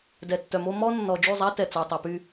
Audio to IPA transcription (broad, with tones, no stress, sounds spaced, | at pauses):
d ɛ˨ tː œ˨ m o˦ m ɔ˦ nː ɔ˨ d͡ʒ y˦˨ zˤ æ˦ t ɛ˨ t͡s æ˨ tˤ u˨ p y˦